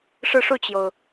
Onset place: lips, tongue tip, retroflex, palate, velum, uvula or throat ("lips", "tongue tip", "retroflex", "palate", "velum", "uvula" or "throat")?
retroflex